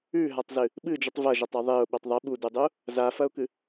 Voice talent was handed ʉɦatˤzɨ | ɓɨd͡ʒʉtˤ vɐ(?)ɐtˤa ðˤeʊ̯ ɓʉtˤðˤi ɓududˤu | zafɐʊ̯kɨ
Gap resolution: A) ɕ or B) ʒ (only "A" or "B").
B